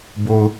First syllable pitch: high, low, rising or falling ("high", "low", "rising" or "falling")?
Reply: low